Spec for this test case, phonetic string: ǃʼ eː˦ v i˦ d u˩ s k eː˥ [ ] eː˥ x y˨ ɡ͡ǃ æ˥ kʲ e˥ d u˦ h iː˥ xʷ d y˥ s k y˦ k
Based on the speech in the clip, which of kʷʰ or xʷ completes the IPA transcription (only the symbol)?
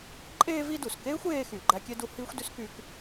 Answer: xʷ